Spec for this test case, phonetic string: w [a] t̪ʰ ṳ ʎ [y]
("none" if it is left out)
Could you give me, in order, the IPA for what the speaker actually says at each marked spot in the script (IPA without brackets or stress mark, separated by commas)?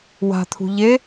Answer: a̤, e